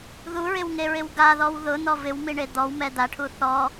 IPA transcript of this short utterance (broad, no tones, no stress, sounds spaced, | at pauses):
ð u ɹ ɪ w ŋ e ɹ ɪ w ɡ a ð ɔ w ð ʊ n̪ ɔ v ɪ w m i ɳ e d̪ ɔ w m ɛ d̪ a ʈʰ u θ ɔ